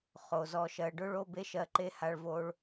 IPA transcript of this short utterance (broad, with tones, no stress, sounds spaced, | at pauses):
χ o˩ z ɔ˨ ʃ ɜ˨ ɖ ʊ˥ ɭ o˥ b e˥ ʃ ɜ˦ ǃ e˥ h a˦ ɭ v o˥ ɭ